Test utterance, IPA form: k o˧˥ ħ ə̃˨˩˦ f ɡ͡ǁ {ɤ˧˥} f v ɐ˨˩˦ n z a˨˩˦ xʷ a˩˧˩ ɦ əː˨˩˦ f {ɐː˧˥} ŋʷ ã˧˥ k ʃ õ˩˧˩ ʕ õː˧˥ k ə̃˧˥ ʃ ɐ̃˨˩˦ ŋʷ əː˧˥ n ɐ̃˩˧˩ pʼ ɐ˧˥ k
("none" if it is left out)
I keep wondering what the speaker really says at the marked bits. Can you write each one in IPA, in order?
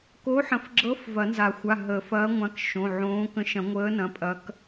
ɤ˧˥, ɐː˧˥

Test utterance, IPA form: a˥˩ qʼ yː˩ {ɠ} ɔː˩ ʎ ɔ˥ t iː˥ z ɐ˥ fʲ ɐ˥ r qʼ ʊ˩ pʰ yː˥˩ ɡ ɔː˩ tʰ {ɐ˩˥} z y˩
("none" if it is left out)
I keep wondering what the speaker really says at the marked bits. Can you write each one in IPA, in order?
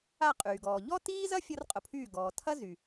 ɡ, ɐ˥

